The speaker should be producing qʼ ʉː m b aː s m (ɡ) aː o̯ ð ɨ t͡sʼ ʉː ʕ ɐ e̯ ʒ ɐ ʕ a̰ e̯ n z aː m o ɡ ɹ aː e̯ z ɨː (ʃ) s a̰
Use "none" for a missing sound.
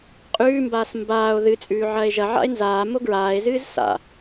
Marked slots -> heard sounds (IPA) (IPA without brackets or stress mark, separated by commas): b, z